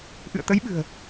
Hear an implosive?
yes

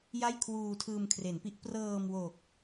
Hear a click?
no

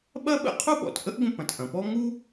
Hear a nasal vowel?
yes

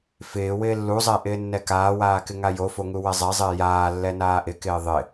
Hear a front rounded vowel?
no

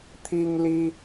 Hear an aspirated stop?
yes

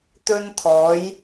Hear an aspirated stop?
yes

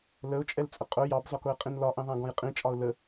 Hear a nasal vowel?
yes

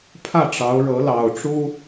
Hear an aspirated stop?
yes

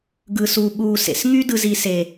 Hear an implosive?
yes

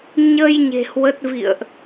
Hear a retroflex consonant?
no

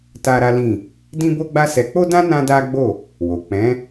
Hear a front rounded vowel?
no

